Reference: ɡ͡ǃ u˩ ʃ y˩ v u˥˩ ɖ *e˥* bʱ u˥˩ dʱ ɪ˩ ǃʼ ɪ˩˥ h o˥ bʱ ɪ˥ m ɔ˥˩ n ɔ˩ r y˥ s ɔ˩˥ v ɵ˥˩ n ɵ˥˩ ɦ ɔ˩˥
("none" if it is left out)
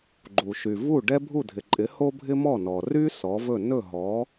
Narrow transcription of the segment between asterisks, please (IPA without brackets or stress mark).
ɛ˥